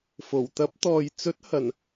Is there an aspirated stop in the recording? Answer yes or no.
no